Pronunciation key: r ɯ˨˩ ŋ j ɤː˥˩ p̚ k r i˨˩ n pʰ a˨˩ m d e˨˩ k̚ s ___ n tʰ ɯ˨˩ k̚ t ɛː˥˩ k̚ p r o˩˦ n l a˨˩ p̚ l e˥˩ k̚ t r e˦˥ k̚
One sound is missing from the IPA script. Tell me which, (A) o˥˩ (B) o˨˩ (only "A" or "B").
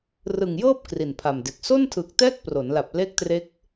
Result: A